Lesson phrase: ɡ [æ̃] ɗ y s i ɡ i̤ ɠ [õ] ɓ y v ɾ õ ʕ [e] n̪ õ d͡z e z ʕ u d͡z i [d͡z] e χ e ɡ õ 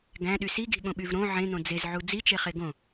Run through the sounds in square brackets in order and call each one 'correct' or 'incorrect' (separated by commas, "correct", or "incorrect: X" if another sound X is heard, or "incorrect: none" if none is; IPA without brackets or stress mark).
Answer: correct, correct, incorrect: ẽ, incorrect: t͡ʃ